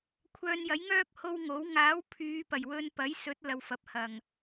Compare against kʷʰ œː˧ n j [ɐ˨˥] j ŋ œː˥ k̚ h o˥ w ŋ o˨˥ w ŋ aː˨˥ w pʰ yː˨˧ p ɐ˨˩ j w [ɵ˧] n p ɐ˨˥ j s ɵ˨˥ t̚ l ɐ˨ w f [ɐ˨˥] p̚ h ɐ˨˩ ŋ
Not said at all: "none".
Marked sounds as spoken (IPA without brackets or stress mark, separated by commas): ɐ˨˥, ɵ˧, ɐ˨